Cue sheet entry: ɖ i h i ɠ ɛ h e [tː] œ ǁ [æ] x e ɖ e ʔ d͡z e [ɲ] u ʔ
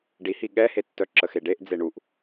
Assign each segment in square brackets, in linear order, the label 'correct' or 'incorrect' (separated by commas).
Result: correct, incorrect, incorrect